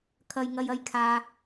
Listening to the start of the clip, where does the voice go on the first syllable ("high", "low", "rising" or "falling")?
low